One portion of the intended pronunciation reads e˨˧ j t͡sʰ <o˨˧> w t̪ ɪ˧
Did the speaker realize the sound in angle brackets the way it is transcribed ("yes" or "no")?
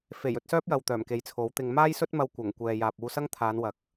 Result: no